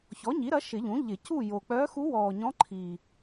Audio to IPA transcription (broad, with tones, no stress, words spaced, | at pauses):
çɔ˩˥ɲi˩˥ɾɐ˩˥ ʃɪ˨˩˦ʎũ˩˥ʎɪ˨˩˦cuː˥˨ jo˨˩ k͡pœː˧˥xu˧˥wɔː˨˩ɲɔ̃˧˥ ǃʰi˨˩